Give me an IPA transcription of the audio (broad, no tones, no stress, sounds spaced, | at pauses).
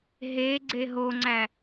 ɦ e ɡ͡ǀ e ɦ o ŋ͡ǀ æ